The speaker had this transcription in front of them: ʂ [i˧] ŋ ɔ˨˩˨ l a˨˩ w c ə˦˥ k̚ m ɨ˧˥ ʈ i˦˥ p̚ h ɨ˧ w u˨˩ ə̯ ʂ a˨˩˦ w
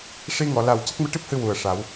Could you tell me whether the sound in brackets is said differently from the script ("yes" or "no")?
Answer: no